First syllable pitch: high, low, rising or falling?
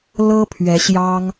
high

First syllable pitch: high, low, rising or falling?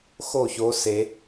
falling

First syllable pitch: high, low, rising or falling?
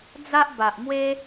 high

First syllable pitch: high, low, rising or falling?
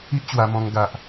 high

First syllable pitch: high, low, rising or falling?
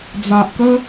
low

